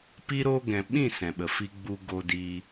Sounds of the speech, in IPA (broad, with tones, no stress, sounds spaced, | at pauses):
p i˧ ɾ oː˧ ɡ ɛ̃˨ ɓ ĩ˦˨ s ɛ̃˨ ɓ ə˨ f i˧ ɡ͡b u˧ ɡ o˧ d i˧